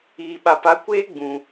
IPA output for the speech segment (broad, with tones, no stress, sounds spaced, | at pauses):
iː˨ ɓ a˨ p a˨˦ kʷ eː˦ ɡ͡b ũ˨